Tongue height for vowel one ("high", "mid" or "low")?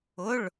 high